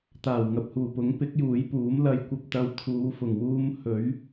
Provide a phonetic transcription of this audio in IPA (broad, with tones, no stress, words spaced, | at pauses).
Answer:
t̪aː˨˩wŋɐ˨p̚huː˨˩pʊ˨˥ŋ pɪ˨˥k̚ juː˨˥jpuː˨˥m lɐ˧jkʷɐ˧p̚ t̪ɐ˧wt̪ʰuː˨˧fʊ˨˩ŋ wuː˧mhɵ˨˥ɥ